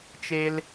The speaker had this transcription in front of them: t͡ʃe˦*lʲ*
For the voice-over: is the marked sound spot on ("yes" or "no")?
no